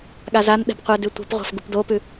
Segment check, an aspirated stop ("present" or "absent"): absent